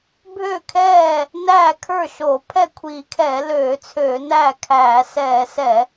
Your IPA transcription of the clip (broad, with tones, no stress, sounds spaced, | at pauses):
bʱ ø˥˩ kʰ ɛː˥˩ | n æː˥˩ kʰ ə˞˥˩ ʃ o˧˩˧ pʰ ɛ˥˩ kʷʰ iː˧˩˧ kʰ ɛː˧˩˧ l øː˧˩˧ t͡sʰ øː˧˩˧ n æ˥˩ kʰ æː˧˩˧ s ɛː˧˩˧ s ɛ˧˩˧